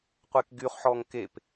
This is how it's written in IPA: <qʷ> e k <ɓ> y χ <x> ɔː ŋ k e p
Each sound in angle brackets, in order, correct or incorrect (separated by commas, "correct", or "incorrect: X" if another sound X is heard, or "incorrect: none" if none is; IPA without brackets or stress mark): correct, incorrect: ɡ, incorrect: ħ